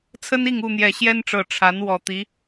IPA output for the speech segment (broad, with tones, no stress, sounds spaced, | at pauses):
t͡sʰ ə˦ n i˥˨ ŋ u˥˨ n̪ j ɛ˨˩ ɕ j ɛ˦ n ʈ͡ʂ ɤ˨˩ ʈ͡ʂʰ a˨˦ n w ɔ˨˩ t̪ i˨˦